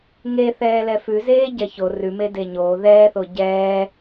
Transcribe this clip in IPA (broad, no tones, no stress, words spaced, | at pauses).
ŋeθɛːlɛ fʉzeː ɟɛço rʉme deɲoː ðɛːθo ɟɛː